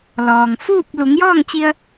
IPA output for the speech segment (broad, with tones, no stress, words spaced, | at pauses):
lɔː˩ŋ fuː˥˨p̚ lu˩˧ŋjɔː˥˨ŋt͡ɕi˧ə̯